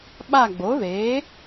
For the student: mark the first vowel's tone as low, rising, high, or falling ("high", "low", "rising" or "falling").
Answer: falling